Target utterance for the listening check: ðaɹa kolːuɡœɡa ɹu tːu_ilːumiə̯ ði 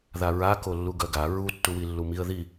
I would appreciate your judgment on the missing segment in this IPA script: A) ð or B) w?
B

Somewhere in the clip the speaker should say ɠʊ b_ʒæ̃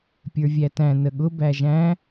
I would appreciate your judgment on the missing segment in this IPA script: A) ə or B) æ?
B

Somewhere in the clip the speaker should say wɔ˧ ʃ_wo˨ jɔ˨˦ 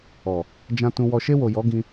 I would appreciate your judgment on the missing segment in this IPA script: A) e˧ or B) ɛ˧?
A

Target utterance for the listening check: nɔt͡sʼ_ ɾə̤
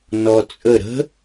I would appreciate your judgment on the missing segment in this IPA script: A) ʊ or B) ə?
B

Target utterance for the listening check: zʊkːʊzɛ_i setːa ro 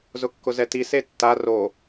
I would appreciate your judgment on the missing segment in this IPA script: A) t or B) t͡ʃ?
A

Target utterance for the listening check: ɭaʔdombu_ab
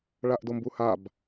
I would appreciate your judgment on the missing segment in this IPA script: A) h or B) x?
A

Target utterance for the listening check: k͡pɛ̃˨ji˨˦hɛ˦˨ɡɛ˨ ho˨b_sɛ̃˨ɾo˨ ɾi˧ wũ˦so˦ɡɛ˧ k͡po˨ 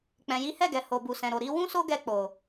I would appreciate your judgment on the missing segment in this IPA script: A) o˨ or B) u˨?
B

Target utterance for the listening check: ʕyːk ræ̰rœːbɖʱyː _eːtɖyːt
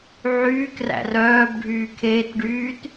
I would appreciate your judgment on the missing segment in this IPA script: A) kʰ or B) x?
A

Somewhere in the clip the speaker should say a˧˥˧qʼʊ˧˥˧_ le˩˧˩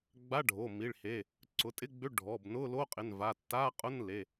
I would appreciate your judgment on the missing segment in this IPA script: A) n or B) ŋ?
A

